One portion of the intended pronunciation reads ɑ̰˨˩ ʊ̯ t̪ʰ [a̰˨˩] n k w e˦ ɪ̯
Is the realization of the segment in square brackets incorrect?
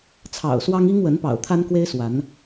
yes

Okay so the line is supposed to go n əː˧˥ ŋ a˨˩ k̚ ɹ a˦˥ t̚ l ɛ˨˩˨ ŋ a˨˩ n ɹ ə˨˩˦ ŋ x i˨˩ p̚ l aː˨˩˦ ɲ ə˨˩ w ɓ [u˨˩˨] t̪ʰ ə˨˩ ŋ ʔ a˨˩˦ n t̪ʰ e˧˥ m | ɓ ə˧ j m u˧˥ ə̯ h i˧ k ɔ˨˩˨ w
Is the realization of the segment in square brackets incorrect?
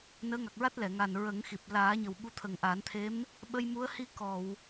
yes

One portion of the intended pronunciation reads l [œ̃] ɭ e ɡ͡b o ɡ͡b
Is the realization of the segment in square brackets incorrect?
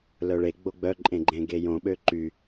yes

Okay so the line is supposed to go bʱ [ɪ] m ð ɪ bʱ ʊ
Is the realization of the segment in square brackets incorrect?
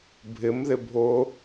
no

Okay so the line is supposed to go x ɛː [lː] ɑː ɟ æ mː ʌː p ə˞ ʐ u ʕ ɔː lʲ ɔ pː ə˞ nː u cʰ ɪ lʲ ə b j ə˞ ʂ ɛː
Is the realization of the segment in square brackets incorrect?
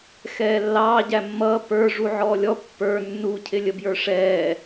no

